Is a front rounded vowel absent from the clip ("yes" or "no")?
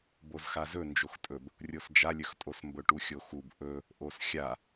yes